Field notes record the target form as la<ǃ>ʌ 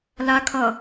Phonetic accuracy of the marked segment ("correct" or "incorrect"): incorrect